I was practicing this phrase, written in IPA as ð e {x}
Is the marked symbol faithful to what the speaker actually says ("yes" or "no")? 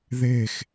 yes